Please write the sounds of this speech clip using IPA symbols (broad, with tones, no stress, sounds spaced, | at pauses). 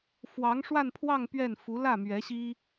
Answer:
f w ɑ˧˥ ŋ ʂ w a˥˧ n pʰ w ɑ˥˧ ŋ p ɥ ɛ˥˩ n f u˧˥ l ä˥˩ m ɥ ɛ˧˥ ɕ i˥